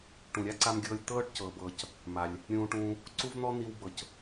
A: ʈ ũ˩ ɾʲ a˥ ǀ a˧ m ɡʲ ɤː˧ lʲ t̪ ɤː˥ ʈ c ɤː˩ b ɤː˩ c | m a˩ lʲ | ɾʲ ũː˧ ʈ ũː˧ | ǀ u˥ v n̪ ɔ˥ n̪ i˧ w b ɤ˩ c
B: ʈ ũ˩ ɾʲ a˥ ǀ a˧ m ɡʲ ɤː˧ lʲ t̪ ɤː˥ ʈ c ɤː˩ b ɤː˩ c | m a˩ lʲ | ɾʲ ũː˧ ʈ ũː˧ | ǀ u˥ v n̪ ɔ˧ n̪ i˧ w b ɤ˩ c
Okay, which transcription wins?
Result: A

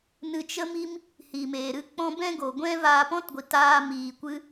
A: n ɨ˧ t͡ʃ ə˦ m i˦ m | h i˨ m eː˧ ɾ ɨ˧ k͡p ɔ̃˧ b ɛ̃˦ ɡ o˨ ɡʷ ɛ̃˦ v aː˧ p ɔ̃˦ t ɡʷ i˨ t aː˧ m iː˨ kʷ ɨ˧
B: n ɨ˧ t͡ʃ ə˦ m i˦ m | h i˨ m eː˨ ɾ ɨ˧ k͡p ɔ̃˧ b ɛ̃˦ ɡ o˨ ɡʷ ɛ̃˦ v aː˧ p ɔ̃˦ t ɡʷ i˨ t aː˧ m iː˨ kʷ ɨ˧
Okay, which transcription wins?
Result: B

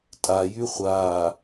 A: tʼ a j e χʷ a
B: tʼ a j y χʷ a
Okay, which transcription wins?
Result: B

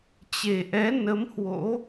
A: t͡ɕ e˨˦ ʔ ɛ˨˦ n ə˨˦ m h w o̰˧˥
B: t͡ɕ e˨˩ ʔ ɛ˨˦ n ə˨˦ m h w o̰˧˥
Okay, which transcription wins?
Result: B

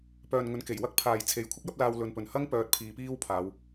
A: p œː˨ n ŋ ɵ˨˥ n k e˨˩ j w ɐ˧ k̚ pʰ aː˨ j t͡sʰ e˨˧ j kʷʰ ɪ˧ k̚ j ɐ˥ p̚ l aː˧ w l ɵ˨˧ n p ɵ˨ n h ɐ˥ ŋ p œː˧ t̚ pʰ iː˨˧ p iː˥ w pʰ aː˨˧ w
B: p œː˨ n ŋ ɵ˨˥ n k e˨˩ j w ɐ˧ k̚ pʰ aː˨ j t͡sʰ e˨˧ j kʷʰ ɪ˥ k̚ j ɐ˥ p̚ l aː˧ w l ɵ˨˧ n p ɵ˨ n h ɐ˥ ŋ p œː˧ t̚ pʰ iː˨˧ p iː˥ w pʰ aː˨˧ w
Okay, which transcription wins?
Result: B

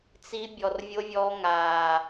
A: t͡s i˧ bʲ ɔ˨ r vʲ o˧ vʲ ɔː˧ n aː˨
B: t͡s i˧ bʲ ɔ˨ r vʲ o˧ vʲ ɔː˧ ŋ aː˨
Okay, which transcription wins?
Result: B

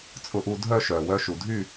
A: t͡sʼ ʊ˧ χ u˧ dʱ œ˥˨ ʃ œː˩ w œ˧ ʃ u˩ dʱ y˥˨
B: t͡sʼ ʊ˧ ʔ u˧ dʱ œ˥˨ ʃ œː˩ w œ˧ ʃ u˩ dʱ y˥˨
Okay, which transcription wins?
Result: B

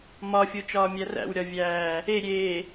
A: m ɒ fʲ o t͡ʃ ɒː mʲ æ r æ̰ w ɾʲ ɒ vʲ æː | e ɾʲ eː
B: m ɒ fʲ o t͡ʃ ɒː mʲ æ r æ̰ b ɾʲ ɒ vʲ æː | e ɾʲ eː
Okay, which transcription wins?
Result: A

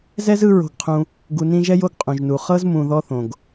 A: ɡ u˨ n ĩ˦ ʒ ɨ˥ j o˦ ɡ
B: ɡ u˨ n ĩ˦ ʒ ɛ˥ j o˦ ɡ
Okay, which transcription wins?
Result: B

